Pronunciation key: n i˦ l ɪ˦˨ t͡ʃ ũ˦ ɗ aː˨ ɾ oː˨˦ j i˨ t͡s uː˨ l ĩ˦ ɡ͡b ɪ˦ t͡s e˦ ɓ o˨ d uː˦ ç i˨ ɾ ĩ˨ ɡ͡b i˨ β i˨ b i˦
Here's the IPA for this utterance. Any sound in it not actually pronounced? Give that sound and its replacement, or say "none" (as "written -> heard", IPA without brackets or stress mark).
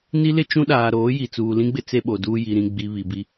ç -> j